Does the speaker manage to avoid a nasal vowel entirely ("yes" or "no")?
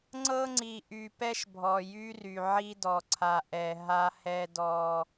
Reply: yes